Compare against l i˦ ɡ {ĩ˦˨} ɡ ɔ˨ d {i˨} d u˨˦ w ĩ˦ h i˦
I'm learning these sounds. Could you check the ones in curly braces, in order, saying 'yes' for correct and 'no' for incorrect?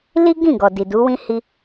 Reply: yes, yes

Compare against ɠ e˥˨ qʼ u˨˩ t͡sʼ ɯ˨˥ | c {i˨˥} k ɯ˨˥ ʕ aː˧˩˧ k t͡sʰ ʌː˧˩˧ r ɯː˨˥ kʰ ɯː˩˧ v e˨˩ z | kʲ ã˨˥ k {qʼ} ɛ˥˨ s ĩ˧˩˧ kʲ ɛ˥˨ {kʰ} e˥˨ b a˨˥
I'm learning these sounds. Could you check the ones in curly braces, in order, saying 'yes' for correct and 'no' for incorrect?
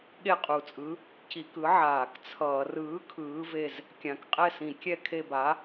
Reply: no, yes, yes

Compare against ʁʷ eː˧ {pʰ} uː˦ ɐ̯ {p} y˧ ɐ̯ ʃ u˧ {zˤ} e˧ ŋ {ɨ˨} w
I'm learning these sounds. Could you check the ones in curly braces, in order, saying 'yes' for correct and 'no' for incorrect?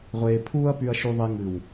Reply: yes, yes, no, yes

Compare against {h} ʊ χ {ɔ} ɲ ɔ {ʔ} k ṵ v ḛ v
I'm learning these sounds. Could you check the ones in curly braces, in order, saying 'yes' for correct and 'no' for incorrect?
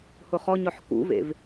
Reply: yes, yes, no

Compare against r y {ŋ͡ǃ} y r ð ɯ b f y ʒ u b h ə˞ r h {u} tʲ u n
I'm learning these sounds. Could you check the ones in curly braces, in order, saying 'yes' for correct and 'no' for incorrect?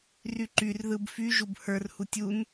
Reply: no, yes

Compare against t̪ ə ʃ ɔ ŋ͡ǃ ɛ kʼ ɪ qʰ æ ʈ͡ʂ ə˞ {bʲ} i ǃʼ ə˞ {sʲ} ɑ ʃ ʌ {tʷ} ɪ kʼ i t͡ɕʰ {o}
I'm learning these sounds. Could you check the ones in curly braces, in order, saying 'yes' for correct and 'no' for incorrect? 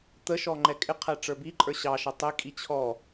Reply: no, no, no, no

